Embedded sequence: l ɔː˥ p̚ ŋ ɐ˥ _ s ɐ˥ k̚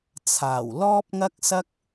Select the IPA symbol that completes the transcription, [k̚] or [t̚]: k̚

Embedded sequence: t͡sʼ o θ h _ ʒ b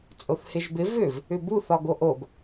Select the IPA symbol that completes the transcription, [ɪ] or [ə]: ɪ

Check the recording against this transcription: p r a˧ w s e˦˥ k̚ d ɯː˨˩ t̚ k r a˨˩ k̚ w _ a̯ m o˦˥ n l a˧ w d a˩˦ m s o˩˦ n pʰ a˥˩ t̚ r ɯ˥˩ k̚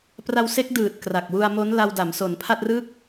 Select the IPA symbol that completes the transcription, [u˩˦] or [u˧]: u˧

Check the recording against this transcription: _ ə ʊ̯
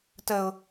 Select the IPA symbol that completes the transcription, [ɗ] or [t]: t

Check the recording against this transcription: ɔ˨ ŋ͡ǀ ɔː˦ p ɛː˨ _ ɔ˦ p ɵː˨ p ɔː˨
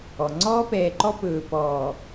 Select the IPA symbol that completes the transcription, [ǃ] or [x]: ǃ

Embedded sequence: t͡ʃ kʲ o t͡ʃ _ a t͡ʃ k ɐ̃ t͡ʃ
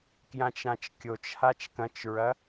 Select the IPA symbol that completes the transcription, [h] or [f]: h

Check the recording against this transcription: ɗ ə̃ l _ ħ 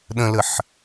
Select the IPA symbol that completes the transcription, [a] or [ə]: ə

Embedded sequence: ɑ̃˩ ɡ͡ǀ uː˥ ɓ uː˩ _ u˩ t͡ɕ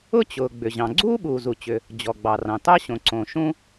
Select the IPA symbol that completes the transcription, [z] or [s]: z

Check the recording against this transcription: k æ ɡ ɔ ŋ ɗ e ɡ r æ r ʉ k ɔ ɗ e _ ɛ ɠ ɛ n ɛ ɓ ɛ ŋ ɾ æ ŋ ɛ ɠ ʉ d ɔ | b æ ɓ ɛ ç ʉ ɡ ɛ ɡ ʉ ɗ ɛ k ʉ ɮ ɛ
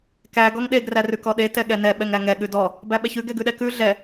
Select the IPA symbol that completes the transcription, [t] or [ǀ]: t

